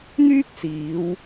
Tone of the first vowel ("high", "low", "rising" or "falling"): high